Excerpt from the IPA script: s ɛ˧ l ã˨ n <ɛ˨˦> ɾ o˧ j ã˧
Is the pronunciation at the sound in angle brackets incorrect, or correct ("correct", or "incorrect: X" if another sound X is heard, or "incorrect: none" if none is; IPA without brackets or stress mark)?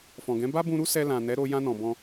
correct